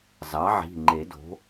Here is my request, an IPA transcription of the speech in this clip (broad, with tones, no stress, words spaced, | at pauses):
zɑ˩˥ʕi̤˩˧˩ŋ͡ǃe˨˩˦do̤˩˥